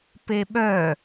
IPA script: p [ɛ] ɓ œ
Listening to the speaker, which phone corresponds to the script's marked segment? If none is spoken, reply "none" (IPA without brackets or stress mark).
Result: e